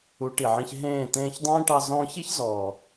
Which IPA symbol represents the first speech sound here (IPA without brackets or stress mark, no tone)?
u